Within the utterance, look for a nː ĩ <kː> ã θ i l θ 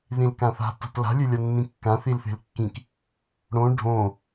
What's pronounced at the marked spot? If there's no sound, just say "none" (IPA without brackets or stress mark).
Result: kː